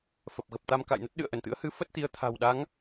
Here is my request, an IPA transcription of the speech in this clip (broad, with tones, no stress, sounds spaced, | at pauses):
f ə˨˩ p̚ ɣ ə˨˩ p̚ t̪ a˧ m k a̰˧˨ j n ə˦˥ t̚ ɗ ɨ̰˧˨ ə̯ ʔ ə˧˩ n t̪ ɨ̰˧˥ ə̯ h ɨ˨˦ f ə˦˥ t̚ t̪ i˨˦ ə̯ t̪ʰ a̤˨˩ w ɗ a˨˦ ŋ